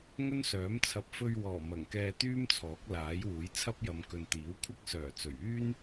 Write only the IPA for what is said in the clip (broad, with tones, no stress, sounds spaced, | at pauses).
ŋ ɵ˥ n s œː˨˥ m t͡sʰ ɐ˨ p̚ f ɵ˧ ɥ w ɔː˨˩ m ɐ˨˩ ŋ k ɛː˧ t̪ yː˥ m t͡sʰ ɔː˨˥ k̚ l aː˨˥ j w uː˨˥ j t͡sʰ ɐ˥ p̚ j ɐ˨˧ m k ɵ˨ n t̪ iː˨˥ w kʷʰ ɐ˥ k̚ s œː˨˩ t͡s ɵ˨˩ ɥ yː˥ n